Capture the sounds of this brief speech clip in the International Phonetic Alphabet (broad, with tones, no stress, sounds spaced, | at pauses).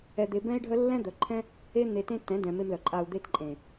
ɛ˨ d̪ e˨ b ɛ̃˧ i̯ ɖʱ œ˧ lː ɛ̃˦ d̪ œ˨ ǃʰ ɛ̃˦ | e˧ n̪ e˨ t ẽ˧ t ɛ̃˨˦ d ɛ̃˨ m e˧ m l œ˨ ǃʼ a˧ u̯ d̪ e˧ t ǃʼ ẽ˨